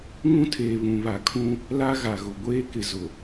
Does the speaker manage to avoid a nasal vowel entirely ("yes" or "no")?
no